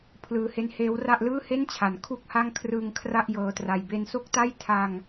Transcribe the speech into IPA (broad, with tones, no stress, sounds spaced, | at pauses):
pʰ l ɯː˧ h e˦˥ n h eː˦˥ w r a˥˩ ʔ l ɯː˥˩ h e˥˩ n t͡ɕʰ a˩˦ n kʰ u˥˩ k̚ h a˥˩ ŋ kʰ r ɯ˧ ŋ kʰ r a˥˩ ʔ j ɤː˧ t r a˧ j b e˧ n s o˥˩ k̚ t a˥˩ j tʰ a˧ ŋ